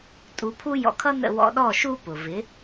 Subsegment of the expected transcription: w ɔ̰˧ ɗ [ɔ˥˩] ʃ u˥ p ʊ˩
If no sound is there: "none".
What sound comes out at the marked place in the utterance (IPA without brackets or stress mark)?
ɔ˥˩